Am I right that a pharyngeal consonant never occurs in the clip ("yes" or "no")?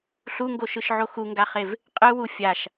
no